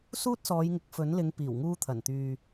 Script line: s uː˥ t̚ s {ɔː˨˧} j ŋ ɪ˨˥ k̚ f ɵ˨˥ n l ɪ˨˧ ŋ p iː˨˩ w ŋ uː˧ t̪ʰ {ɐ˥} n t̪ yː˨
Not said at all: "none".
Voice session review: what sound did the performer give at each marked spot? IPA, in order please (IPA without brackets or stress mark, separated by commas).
ɔː˨˧, ɐ˨˩